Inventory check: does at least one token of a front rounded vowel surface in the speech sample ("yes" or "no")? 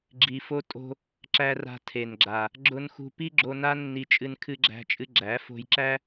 no